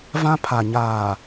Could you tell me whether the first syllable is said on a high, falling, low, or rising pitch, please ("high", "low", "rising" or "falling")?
high